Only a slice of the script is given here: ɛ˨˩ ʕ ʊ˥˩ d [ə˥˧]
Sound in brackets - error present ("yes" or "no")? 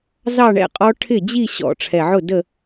no